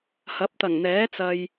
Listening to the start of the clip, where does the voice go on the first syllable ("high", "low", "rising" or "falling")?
rising